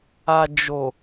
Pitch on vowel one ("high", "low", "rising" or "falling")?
low